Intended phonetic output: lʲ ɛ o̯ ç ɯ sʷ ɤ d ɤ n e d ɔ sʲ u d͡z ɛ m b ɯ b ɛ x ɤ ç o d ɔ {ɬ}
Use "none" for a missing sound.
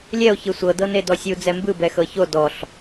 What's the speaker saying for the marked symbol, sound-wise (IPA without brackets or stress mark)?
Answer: ɬ